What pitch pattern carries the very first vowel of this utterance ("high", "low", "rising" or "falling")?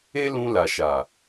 high